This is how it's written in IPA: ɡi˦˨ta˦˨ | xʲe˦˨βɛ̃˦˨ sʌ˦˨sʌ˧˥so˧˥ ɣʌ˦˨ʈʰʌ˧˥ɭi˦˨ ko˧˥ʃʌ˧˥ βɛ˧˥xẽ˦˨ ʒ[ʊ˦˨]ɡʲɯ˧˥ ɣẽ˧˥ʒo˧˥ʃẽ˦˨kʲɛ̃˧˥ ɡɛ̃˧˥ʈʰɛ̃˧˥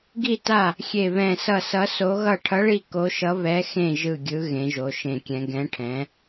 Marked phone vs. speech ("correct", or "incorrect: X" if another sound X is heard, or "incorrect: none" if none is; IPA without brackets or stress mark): incorrect: ɯ˦˨